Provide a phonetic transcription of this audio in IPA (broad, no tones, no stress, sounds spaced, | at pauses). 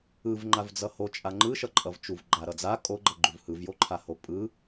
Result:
ɯ v ŋ͡ǃ a v d͡z ʌ h o t͡ʃʼ a ŋ͡ǃ ɯ ʃ ʌ ǃʼ ʌ v t͡ʃ u v ɡ͡ǃ a ɾ ʌ d͡z a kʼ o ɡ͡ǃ ʌ ɡ͡ǃ u v h ɯ v j o ǃʰ a h o pʼ ɯ